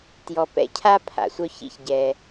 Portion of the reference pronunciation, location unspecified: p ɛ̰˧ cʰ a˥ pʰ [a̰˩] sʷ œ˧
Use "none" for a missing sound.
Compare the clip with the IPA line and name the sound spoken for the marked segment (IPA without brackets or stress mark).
a̰˩